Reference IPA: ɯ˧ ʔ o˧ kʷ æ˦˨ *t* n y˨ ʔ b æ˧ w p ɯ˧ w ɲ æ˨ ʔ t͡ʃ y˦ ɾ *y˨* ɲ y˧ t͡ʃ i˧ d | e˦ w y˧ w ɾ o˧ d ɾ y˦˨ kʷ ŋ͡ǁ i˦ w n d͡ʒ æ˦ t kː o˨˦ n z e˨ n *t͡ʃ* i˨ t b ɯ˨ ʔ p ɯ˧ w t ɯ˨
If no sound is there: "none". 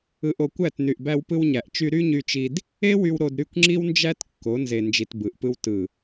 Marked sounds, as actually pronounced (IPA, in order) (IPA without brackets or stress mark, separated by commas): t, y˦, d͡ʒ